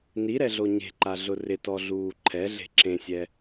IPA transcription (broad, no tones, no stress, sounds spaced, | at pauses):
n i ɾ ɛ ɮ o ɲ e̤ ǃ a ɮ ʊ r ɪ t ɔ ɮ uː ǃʰ ɛ ɮ e̤ ǁ ẽ sʲ ɛ